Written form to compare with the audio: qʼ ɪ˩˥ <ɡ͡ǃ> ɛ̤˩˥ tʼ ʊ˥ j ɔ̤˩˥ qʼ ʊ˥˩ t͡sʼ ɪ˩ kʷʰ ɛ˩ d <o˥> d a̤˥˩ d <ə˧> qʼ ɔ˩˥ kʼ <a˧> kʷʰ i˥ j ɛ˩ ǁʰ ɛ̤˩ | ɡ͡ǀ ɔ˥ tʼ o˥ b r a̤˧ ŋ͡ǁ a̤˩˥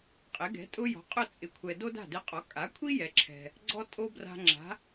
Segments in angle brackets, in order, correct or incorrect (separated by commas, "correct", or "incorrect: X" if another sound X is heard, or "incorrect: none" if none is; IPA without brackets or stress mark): incorrect: ɡ, correct, incorrect: ɪ˧, incorrect: a˩˥